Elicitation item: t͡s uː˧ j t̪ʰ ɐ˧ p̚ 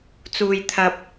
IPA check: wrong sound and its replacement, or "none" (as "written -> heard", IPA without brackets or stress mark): none